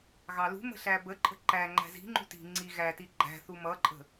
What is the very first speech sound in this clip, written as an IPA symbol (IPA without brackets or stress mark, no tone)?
ɣ